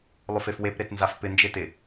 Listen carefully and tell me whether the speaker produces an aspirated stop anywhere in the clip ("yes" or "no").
no